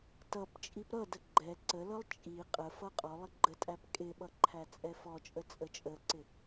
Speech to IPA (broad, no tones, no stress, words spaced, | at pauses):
tʌp t͡ʃʼipɾʌdə ɡ͡ǃɛ ǀəlʌlˠ t͡ʃʼi qʼəfʌ qʼɔlˠɪ ɡ͡ǃətʼæp kʼɪɓʌ ǃʰæt͡sʼɛfɔt͡ʃʼə t͡sʼət͡ʃʼəǀɪ